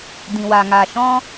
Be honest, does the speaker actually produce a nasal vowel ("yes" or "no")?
yes